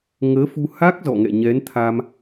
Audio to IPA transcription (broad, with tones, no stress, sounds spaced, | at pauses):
ŋ əː˨˦ f u˧ h a˦˥ k̚ z ɔ̰˧˨ ŋ ɛ̰˧˨ ɲ ɛ˨˦ n t̪ʰ a˧ m